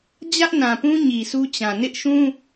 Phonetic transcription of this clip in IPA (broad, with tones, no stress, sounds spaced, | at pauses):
d͡ʑ ä˦ ʔ n ã˨ p ũ˦ ɲ i˨ sʰ u˦ t͡ɕ ã˨ n ɪ˦ ʔ ʃ ũ˦